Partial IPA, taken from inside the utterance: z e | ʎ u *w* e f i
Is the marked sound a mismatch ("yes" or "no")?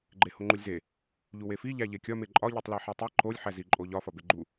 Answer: no